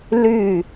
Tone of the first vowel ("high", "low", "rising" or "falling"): falling